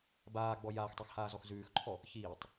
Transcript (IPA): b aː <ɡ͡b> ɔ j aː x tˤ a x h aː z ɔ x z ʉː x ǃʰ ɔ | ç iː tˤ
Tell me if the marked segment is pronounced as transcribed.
yes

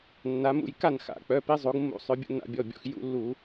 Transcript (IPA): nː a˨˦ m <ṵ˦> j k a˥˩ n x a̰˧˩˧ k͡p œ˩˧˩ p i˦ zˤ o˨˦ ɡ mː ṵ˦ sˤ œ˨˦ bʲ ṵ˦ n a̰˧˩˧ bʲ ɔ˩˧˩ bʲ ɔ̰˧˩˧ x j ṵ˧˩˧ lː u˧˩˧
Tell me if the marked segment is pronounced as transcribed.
no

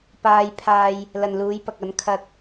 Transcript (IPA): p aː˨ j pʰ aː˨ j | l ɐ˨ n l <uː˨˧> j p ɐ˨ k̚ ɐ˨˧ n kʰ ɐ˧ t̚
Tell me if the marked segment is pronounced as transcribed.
yes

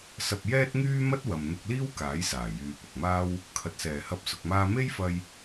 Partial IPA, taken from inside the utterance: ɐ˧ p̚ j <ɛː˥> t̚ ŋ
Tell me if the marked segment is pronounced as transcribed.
yes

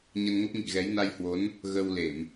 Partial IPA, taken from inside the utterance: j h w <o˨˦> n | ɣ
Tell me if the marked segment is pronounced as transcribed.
yes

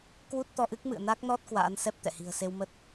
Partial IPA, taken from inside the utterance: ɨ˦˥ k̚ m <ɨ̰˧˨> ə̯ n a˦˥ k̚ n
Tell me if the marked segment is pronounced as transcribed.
yes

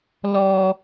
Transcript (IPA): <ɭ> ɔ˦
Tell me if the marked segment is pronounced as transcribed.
no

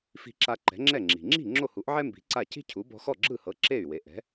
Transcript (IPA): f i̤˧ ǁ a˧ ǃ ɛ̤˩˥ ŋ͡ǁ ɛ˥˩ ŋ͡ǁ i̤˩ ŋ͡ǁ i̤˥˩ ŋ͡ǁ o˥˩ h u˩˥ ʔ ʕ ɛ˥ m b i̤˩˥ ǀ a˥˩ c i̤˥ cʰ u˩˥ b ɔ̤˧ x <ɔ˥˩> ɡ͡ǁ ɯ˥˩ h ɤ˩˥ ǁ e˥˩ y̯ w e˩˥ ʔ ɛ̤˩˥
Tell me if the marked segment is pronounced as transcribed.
yes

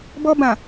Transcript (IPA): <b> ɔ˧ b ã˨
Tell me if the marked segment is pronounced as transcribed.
yes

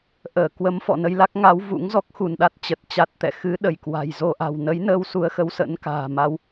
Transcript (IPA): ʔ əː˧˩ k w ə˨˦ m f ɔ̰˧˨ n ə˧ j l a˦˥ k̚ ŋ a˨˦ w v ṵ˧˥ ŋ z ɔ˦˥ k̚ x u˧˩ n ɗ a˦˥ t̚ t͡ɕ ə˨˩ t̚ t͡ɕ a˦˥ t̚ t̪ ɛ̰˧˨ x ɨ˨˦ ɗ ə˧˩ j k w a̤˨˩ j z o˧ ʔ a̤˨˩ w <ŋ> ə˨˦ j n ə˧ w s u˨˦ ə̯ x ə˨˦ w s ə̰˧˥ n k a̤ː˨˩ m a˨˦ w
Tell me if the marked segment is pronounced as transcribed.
no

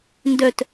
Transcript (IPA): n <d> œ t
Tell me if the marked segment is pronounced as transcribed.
yes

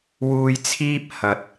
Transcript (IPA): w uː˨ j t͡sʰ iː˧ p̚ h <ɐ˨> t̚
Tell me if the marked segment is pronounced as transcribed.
yes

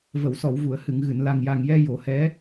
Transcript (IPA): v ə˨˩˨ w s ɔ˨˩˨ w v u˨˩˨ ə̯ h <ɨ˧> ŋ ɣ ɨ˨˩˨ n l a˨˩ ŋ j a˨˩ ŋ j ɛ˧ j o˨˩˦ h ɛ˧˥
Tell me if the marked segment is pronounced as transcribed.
no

